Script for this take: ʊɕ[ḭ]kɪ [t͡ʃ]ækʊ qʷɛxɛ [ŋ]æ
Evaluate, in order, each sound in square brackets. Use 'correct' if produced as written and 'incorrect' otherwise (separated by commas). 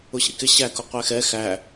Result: correct, incorrect, incorrect